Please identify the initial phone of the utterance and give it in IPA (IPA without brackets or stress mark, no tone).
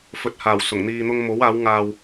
f